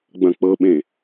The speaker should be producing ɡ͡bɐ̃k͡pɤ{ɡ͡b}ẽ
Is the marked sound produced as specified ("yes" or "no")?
no